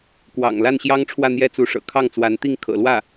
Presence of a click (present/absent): absent